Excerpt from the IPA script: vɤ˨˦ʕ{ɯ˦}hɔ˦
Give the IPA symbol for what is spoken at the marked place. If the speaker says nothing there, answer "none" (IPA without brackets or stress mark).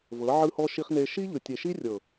ɯ˦